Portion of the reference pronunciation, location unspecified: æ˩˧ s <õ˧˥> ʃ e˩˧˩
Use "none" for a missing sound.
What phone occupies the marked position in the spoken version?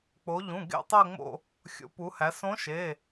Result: õ˧˥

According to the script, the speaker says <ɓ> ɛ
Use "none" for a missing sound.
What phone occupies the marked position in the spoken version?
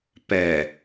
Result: p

